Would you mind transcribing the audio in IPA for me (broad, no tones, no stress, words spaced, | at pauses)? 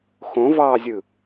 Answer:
xõvɑːzʲɯ